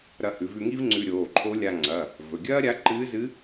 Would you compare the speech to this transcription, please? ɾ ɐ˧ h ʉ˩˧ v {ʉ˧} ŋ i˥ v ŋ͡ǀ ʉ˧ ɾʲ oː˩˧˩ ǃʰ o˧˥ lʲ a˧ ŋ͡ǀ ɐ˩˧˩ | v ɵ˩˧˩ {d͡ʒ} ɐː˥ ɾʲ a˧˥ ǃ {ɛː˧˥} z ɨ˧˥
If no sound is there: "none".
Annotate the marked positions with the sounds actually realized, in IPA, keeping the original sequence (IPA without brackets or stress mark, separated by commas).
ʉ˧, ɡʲ, ɨː˧˥